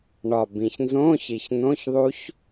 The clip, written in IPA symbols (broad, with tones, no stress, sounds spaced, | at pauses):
ɳ ɒ˨˩ b ĩ˨˩ ç n z õː˧˥˧ ç i˨˩ ç n õ˧˥˧ ç ðˤ u˦˥ ç